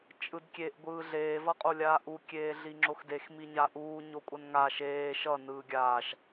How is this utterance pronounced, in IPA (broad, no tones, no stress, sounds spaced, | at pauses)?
t͡ʃʼ ɯ d kʲ e ʔ ɡʷ ɯː ɮ eː v ʌ qʼ o lʲ aː ʔ u kʲ eː ɮ i ŋ͡ǁ o x d e x m i ɲ a ʔ uː ɲ o kʷʼ ʌ n ŋ a ʃ eː ʃ ʌ n ɯː ɡʲ aː ʃ